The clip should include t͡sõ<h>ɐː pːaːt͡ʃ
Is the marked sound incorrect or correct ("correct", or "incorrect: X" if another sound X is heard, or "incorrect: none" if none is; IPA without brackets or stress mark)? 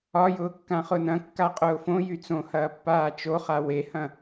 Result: correct